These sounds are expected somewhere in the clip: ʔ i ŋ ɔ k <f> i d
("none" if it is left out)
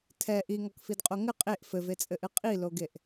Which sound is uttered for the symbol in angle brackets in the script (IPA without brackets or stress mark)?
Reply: f